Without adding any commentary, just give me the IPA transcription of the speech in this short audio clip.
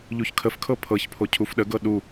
ʎ u ç kʰ ə f kʰ ɤ pʰ ɤ ç pʰ o cʰ u f ɗ ə ɡ ɤ ɗ u

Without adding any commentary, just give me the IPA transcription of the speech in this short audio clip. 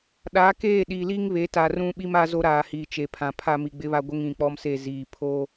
ɗ a˨˦ k eː˦˨ ɗ i˨ l i˦ ŋ β e˨˦ t a˨ r ũ˦ ɓ i˦ m a˦ z o˦ ɾ aː˨ h iː˨ t͡ʃ e˨ pʰ ã˨ pʰ a˦ m i˨ ɡ͡b ɪ˦ β a˦ ɡʷ ɪ˦ ŋ ĩ˨ k͡p ɔ˦ m s e˦˨ z iː˨ pʰ o˦

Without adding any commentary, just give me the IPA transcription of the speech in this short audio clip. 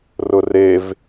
r ʊ r e v

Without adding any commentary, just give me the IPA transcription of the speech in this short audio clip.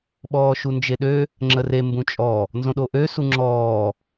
ɓ ɔː ʃ u n d͡ʒ e ɗ ø | ŋ͡ǁ ə r e m b ũ t͡ʃʼ ɔ | n z õ ɗ o ʔ ø s u ŋ͡ǁ ɔː

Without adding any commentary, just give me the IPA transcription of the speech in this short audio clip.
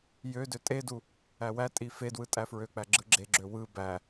j ø d ø tʼ e d u | æ w æ tʼ i f e d w ɯ tʼ æ f ɹ ø k͡p æ ɡ͡ǁ ɯ ɡ͡ǁ e ɡ͡ǁ ø w ɯ b æ

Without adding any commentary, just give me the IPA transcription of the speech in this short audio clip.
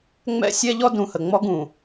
ŋ͡m ɛ̰˦ sʲ ɛ˦ ʎ ɔ˦ d ũ˨ h ə˨ ŋ͡m ɔ˦ ɡ ũ˨

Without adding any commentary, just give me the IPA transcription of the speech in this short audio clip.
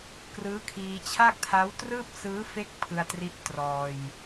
k r ɯː˦˥ kʰ iː˧ t͡ɕʰ a˥˩ k̚ tʰ a˦˥ w t r ɯː˥˩ p̚ s ɯː˦˥ f e˦˥ k̚ pʰ ɯ˧ a̯ t r i˦˥ ʔ t r ɔː˧ j

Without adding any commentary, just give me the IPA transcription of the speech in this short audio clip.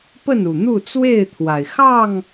p ə˥˨ n u˨˩ n̪ u˥˨ t͡s w e˥˨ ɪ̯ t̪ʰ w a˩ ɪ̯ x ɑ˥˨ ŋ

